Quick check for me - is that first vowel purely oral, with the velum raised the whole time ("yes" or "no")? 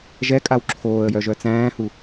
yes